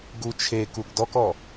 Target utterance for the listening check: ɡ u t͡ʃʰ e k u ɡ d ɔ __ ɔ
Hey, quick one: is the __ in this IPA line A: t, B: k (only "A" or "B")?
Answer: B